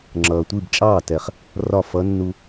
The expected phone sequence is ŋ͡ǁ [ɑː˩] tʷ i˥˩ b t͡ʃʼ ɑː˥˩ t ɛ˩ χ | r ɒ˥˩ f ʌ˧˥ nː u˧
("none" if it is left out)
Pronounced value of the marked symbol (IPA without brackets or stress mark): ʌː˩